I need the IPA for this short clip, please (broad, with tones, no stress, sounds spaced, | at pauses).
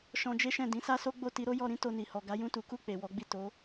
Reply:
ʃ ɔ̃˧ d͡ʒ e˦ ʃ ɛ̃˦˨ d ĩ˨˦ s a˦ s o˦ ɡ͡b o˦˨ t i˧ ɾ o˦ j ɔ˧ ɾ ĩ˦ t o˧ n i˨ h ɔ˨ ɡ a˨˦ j ũ˦˨ t u˨˦ k u˦˨ k͡p e˨ w ɔ˨˦ ɡ͡b i˦˨ t o˨˦